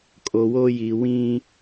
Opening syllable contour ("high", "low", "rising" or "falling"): low